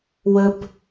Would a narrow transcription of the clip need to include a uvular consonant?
no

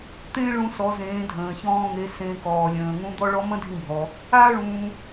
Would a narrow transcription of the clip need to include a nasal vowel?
yes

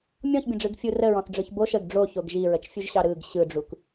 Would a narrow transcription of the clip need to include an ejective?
no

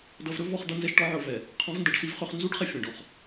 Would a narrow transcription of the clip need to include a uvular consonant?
yes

